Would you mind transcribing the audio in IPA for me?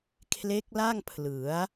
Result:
kʰle˦˥k̚la˥˩ŋ pʰlɯ˩˦a̯

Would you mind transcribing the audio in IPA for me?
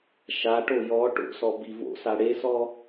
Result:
ʃaʈo jɔ ʈo̰sɔ bivo̰sa ɽesɔ

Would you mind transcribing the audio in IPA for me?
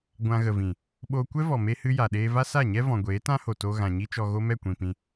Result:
ɡʷã˧ ɣə˨vĩ˨ | ɓo˧ kʷɛ˦vɔ˨me˧ hɨ˦ja˨ɗeː˦ va˦sa˦˨ɲɛ˦ vɔ̃˨ɡʷeː˨˦ tã˦ho˨ to˧ ɣã˨ɲi˦t͡ʃɔ˧ ɣo˦mɛ˦˨kʷĩ˨pĩ˧

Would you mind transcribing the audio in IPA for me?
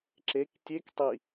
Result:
ǁek tʲek tˤi

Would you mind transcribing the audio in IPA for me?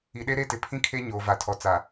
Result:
i˨ɗe˦ ɾe˦tɪ˨pʰĩ˦kʰe˦ ɲoː˨va˨tʰɔ˨ t͡sa˨

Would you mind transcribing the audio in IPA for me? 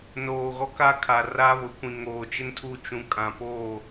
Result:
noː˨ɣɔ˦ka˦kʰa˨ ra˦βʊ˨kʷĩ˨ ŋoː˨t͡ʃɪ˦ntʰu˦˨ t͡ʃũ˨kʼã˨poː˦˨

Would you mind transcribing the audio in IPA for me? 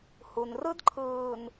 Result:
hu˨n rɯ˦dǃʰɯː˨n

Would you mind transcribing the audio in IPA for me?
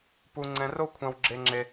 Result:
pu˧ŋ͡ǀɛ̃˧ro˥kʷʰã˧w ɡ͡ǁe˥ŋ͡ǁe˥

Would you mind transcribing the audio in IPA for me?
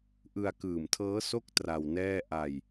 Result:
ʔɯ˧a̯kɯː˨˩mtʰɤː˦˥ so˥˩k̚ tra˧wnɛː˥˩ ʔa˧j

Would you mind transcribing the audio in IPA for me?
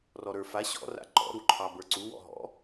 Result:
rɔɾə˞fa ɕɔ̰ ra̰ǃɔ̰ ɾuǃʰɑbə˞ǀu wɔ̰ɦɔ̰

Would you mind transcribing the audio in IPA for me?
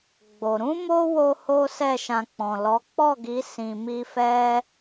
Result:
ɡ͡bo˨ ɾũ˧mo˧ wo˦ho˦sɛ˦˨ʃã˧ k͡pɔ̃˨lɔ˨˦ k͡pɔ˦˨ɡi˨˦ sĩ˧mi˦ fɛ˧

